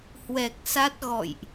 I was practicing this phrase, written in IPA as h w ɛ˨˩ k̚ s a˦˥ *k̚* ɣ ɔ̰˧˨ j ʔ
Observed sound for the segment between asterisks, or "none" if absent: t̚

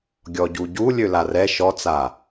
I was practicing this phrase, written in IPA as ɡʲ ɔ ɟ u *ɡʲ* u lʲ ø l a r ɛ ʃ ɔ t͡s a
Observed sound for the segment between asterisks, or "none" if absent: ɟ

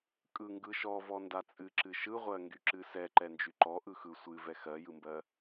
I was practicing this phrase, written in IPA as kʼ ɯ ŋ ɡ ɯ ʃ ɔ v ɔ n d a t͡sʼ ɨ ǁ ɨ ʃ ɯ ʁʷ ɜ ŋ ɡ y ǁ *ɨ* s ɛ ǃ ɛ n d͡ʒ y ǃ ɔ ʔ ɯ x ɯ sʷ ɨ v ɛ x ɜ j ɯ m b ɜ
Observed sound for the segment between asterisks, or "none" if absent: ɨ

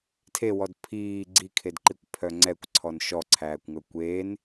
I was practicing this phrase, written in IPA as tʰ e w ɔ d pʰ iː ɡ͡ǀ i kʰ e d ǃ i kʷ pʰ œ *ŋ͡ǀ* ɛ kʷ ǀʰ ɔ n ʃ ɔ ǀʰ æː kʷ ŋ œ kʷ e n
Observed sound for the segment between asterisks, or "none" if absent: ŋ͡ǀ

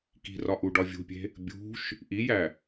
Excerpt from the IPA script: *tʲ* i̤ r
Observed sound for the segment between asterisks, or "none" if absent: k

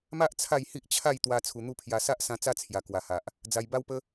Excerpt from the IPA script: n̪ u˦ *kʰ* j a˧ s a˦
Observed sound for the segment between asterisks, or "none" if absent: pʰ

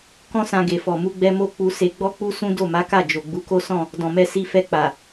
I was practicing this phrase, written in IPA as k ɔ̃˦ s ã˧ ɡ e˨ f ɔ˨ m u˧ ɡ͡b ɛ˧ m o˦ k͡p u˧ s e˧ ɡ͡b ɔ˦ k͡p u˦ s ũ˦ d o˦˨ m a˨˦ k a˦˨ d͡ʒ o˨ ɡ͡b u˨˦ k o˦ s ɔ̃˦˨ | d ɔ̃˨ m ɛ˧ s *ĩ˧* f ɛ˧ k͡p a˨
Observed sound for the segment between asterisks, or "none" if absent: i˧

